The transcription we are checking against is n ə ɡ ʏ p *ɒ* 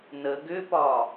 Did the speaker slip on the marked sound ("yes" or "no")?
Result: no